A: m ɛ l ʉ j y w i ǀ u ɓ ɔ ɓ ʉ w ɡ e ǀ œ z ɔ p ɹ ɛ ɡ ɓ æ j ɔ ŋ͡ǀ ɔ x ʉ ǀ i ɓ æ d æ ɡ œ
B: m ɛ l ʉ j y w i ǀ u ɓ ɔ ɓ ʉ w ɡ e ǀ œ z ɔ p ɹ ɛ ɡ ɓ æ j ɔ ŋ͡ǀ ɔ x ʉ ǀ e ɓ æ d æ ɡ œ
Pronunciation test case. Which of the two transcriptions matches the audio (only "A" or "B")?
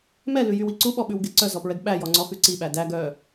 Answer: A